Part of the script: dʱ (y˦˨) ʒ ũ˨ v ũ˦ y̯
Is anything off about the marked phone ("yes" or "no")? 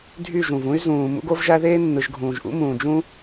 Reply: no